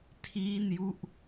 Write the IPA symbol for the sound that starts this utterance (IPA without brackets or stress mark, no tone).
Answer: tʰ